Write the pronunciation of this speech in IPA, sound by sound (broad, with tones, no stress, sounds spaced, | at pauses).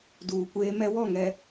d uː˨ kʷ eː˦ m ɛ˦ w ɔ˦˨ ŋ ɛ˨